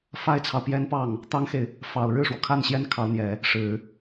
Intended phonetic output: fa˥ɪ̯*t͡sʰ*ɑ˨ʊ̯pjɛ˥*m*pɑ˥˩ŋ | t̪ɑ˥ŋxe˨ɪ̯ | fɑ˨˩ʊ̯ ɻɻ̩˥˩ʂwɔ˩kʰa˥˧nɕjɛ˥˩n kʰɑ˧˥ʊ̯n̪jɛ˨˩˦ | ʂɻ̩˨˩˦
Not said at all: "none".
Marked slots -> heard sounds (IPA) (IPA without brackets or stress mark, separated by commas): t͡sʰ, n